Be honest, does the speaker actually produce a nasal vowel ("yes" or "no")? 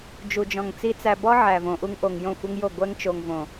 yes